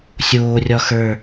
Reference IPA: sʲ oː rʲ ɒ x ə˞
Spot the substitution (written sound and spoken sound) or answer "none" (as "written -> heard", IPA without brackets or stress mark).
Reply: none